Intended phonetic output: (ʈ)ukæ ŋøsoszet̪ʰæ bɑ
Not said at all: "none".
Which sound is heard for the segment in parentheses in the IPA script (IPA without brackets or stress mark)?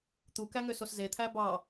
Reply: t̪